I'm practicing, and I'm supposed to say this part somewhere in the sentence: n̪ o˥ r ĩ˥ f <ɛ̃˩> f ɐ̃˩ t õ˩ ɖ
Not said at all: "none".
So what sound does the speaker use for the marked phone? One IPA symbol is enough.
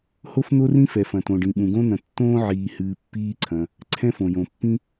ɛ˩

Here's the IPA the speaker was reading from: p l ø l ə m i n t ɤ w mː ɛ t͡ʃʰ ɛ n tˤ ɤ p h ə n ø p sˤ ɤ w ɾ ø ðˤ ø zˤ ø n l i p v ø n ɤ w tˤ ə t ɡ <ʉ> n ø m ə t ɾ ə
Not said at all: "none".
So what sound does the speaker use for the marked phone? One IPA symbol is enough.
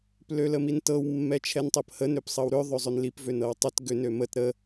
ø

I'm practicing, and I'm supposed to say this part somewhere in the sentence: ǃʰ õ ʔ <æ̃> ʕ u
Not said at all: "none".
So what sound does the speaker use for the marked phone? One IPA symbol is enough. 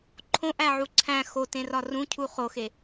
æ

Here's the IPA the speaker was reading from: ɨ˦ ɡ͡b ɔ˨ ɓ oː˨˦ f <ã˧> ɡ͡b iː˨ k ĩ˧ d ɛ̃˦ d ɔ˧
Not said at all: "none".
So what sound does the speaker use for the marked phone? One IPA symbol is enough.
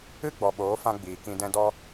ã˧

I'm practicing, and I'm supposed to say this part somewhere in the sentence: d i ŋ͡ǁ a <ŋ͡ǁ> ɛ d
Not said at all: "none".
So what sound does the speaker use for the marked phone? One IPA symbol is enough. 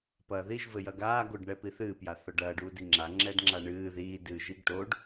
ŋ͡ǁ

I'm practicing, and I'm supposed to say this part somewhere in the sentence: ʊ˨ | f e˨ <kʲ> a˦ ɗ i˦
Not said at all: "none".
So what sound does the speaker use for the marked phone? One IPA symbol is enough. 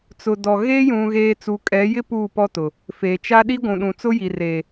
t͡ʃ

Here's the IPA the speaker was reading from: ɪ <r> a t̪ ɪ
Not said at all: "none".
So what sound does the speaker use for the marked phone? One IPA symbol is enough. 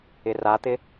r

